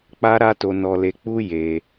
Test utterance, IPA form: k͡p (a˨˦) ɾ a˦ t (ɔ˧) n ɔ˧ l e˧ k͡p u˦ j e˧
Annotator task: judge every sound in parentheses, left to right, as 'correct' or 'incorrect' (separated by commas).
incorrect, incorrect